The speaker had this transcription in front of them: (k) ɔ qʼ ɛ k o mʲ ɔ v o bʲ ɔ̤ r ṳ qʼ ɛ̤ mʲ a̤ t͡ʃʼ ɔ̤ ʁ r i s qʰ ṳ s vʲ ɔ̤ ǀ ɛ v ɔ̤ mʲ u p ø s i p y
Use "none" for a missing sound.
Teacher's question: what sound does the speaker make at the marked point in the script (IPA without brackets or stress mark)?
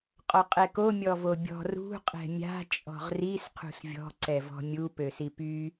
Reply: qʼ